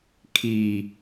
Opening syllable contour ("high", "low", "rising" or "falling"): low